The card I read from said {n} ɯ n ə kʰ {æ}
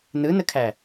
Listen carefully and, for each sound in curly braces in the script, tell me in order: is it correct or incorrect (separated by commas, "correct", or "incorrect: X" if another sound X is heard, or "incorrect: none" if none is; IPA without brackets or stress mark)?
correct, correct